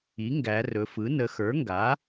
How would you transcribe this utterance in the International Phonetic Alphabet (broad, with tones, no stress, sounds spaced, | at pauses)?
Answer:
i˩˥ ŋ ɡ æ˩˧ r ɵ˩˧ f ɯ˩˥ n ə˩˧ x ə˞˩˥ ŋ ɡ a˩˥